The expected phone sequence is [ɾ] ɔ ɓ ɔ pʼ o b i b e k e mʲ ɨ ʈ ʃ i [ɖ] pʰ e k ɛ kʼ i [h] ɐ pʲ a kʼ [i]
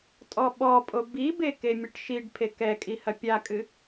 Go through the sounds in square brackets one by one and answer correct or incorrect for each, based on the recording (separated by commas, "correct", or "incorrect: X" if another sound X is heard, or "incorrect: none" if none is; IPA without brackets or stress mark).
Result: incorrect: tʼ, correct, correct, incorrect: ɨ